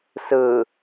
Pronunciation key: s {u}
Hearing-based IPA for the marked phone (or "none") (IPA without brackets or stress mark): ɯ